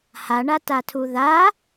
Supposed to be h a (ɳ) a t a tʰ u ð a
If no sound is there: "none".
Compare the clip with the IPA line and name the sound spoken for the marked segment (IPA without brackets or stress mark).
ɳ